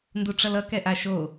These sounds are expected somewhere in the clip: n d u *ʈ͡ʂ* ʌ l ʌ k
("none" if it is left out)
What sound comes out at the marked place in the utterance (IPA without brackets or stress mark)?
ʈ͡ʂ